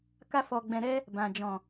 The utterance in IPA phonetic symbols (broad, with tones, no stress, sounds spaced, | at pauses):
k a˦ f ɔ˧ ɡ͡b ɛ̃˧ ɾ ɛ˦ | b ã˨ d͡ʒ ɔ̃˨